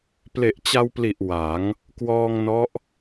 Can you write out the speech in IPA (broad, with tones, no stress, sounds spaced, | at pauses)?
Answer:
p l e˨˩ ʔ t͡ɕ a˧ w p l i˨˩ ʔ w a˩˦ ŋ | k w ɔː˧ ŋ n ɔ˦˥ ʔ